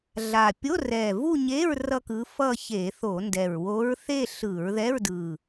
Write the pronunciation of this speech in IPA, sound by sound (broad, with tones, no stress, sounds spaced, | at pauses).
ɮ a˨˩ pʲ o˧˥˧ r ɛ˨˩ v u˥˧ ɲ e˧˥˧ ɹ r ʌ˥˧ k ɯ˧˥ f ʌ˥˧ ç e˧˩˧ θ o˧˩˧ n d ɛ˨˩ ɹ w o˧˥ ɹ θ e˥˧ ɬ ɯ˧˩˧ ɹ ð ɛ˧˥˧ ɹ d ɯ˨˩